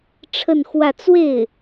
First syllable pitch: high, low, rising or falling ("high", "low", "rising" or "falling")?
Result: falling